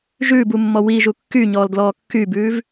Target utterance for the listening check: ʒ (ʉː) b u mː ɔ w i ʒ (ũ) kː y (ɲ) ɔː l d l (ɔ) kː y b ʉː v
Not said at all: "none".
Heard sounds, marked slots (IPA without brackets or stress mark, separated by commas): ʉː, u, ɲ, ɔː